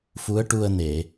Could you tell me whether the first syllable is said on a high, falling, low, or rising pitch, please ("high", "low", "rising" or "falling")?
rising